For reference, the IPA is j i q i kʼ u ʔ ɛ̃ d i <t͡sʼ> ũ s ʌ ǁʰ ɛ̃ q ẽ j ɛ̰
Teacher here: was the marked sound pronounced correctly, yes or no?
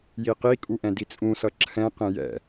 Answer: yes